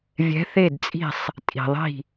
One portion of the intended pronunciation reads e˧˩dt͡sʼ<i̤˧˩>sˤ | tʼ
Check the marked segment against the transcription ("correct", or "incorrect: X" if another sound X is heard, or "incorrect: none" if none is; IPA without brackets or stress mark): correct